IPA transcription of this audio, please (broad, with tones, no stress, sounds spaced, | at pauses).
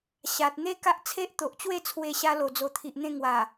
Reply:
ɕ a˨ t̚ n̪ e˦ k a˦ ʔ t͡sʰ e˦ ʔ t̪ o˨ ʔ t͡ɕ w e˥˧ t͡sʰ w e˧ ɕ a˧ l o˨˩ d͡z o˨˩ t̪ʰ i˨ ʔ n̪ ẽ˧ ŋ w a˨˩